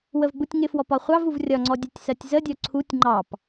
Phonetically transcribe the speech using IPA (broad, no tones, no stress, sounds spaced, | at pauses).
w ə v ɡ͡b u tʲ ŋ ɪ f w ɔ p ɒ χʷ ɑ v u v rʲ ɒ ŋ͡ǀ ɔ dʲ ɒ tʲ s ɜ tʲ z ə dʲ ɔ ǀʰ u tʲ ŋ͡ǃ ɑ p